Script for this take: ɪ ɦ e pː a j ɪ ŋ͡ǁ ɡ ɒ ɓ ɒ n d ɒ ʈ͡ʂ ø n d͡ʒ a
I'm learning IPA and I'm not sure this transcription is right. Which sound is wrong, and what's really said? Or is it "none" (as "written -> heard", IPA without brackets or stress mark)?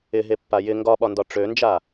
ŋ͡ǁ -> ŋ